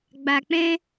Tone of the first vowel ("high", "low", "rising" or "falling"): low